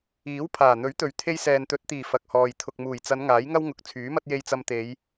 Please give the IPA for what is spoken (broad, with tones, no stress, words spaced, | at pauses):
iː˨˥w pʰaː˨˩n̪ɵ˨˥ɥt̪ɵ˨ɥ t̪ʰe˧jsɛː˨nt̪ɵ˨˥t̚t̪iː˨˩ fɐ˨k̚hɔː˨j t̪ʰʊ˨k̚muː˨˩jt͡sɐ˨˧n ŋaː˨˥jŋɐ˥wŋʊ˨k̚ t͡sʰyː˨˥mɐ˥t̚ je˧j t͡sɐ˧mt̪e˨˧j